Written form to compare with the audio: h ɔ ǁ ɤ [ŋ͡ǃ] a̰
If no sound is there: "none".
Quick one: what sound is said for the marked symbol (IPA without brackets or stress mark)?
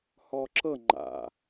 ŋ͡ǃ